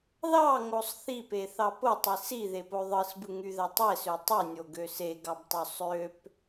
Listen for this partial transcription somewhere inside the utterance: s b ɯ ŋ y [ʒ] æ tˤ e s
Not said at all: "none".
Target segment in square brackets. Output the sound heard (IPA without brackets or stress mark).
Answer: ð